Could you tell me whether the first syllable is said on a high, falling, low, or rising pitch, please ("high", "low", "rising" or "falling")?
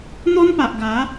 high